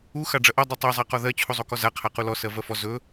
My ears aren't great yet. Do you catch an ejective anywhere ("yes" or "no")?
no